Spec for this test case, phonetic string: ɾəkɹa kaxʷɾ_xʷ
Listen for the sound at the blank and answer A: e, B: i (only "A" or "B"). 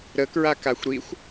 B